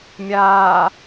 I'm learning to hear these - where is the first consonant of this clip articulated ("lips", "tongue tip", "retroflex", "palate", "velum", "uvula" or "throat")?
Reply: lips